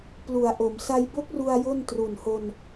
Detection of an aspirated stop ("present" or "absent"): absent